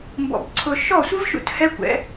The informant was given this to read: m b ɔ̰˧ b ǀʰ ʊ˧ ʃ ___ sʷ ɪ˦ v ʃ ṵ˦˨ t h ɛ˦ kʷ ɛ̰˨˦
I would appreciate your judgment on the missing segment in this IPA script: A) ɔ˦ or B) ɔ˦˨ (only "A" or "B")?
B